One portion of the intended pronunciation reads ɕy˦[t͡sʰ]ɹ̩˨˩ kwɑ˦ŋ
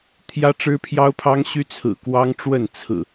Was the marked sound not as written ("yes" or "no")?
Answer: no